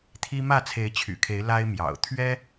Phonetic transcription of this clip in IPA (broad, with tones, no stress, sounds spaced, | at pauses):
t̪ʰ i˦ m ä˥˨ t͡sʰ e˨˦ ɪ̯ t͡ɕʰ y̰˨˩ kʰ e˨˦ ɪ̯ l a˦ ɪ̯ m j ɑ̰˨˩ ʊ̯ t̪ʰ ɥ ɛ˦